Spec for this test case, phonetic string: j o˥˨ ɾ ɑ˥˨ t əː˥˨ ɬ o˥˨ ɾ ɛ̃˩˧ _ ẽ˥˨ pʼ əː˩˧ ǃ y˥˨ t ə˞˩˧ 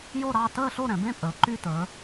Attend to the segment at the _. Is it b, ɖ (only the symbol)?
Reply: b